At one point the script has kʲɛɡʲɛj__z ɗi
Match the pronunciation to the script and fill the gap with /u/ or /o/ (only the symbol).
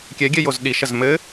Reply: o